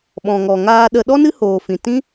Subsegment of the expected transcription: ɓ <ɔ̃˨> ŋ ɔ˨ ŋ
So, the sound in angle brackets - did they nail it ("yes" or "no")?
yes